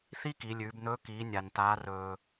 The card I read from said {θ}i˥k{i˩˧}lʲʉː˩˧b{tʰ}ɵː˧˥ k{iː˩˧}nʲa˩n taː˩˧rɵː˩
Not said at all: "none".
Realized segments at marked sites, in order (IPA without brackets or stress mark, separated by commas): θ, i˩˧, n, iː˩˧